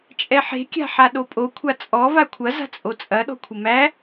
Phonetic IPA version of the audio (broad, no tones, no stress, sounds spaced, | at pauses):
t͡ʃʼ ɛ ħ e̤ kʲ a̤ ħ a ɗ o pʼ o kʷʰ a t͡sʼ ɔ v a kʷʰ ɐ z a̤ t͡sʼ o t͡sʼ ɐ ɗ ɔ̤ kʷʰ ə m æ